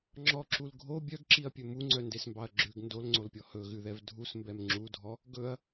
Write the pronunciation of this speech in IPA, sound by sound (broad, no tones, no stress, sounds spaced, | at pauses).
ŋ͡ǁ ɔ ǁ u l ɡʱ o bʲ œ ɡ ǁ i ɐ̯ pʲ ɵ m u ŋ͡ǀ œ n d e s m b ɑ ɐ̯ ɡ͡ǁ ʉ ɡ n d o l ŋ͡ǀ o l pʲ ɔ h ɵ ɣ ʉ ð ɛ v dʱ u s m b ɛ m ŋ͡ǁ u dʱ ɔ | ɡ ɵ ɐ̯